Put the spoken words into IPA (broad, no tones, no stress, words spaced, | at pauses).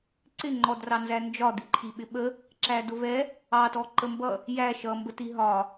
ǀɪŋ͡ǃɔdrɑnzæ nd͡ʒɒd̪iǃʰiɓɪ ɓə | ǁædʊvɛ | ɑtɔ ǃəmbʌ | jæ ʃʌmbə tiɦɒ